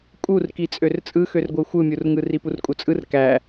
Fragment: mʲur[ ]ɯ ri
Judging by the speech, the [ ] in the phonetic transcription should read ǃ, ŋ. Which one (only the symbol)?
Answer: ŋ